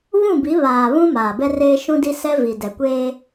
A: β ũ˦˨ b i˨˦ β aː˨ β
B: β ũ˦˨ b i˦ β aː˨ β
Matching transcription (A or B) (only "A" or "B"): A